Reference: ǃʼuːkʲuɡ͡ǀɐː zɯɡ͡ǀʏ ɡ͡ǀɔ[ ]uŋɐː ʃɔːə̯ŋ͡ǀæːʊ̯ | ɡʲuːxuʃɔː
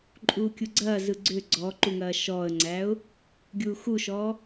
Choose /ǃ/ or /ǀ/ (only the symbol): ǃ